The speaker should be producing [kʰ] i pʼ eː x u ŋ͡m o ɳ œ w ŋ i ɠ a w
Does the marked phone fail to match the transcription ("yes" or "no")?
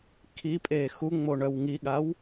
no